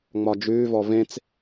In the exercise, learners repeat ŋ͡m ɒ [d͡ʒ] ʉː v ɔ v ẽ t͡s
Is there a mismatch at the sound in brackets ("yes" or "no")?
no